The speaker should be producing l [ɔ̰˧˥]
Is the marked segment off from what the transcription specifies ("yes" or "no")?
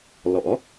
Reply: no